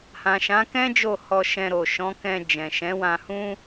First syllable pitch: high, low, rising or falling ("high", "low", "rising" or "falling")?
low